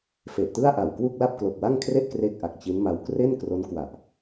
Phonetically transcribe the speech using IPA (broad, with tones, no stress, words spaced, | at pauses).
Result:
fe˨˩ʔtɯ˥˩a̯ ʔa˨˩wkwu˥˩k̚ la˥˩p̚klo˨˩k̚wa˥˩ŋkʰre˥˩ʔ kre˥˩k̚ʔa˨˩k̚t͡ɕi˦˥nma˧w kre˥˩nkro˦˥nkwa˨˩ʔ